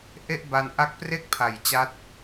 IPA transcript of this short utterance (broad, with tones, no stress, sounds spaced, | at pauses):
ʔ e˥˩ ʔ b a˧ n ʔ a˦˥ k̚ p r e˥˩ k̚ pʰ a˨˩ j t͡ɕ a˦˥ t̚